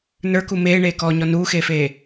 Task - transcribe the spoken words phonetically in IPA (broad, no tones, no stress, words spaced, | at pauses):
nə˞ku meːɳeːkɔːɲɔ nuːxeːfeː